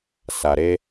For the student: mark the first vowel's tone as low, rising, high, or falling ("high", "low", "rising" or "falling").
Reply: low